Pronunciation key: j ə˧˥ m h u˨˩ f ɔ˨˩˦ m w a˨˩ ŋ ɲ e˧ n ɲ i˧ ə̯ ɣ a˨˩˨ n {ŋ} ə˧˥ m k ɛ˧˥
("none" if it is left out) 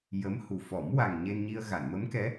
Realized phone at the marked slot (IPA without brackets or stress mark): m